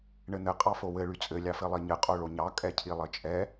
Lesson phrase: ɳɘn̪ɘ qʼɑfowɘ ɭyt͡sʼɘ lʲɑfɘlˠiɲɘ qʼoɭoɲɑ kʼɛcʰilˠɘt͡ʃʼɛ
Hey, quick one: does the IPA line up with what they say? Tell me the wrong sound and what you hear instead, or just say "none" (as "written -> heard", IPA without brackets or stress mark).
none